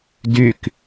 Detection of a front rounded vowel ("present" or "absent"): present